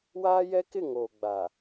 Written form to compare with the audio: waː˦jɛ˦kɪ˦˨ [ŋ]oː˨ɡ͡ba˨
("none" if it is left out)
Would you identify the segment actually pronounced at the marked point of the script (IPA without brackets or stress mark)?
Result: ŋ